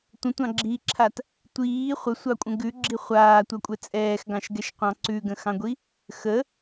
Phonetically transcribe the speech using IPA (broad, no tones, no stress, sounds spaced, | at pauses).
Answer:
tʷ ə̃ tʷ ɑ̃ ɡ͡ǁ iː ǁʰ a t | tʷ iː χʷ ə sʷ ɑ kʷʼ ə̃ ɡ ʉ ɡ͡ǁ i χʷ aː tʷ ɑ kʷʼ ɛ t͡sʼ ɛː x ɡ ɑ̃ ʃ ɡ ɛ ʃ qʷ ɑ̃ ǀ ʉ ɡ ə̃ x ɑ̃ ɡʷ i | x ə